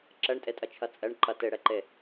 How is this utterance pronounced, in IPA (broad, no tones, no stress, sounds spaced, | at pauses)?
ǁ ɛ ɳ tʼ e tʼ ɐ t͡ʃʰ ɐ t͡sʼ ɛ ɳ ǃ ɐ t e ɽ ɛ ǃ e